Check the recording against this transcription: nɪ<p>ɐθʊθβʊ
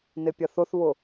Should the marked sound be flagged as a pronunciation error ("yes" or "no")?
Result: yes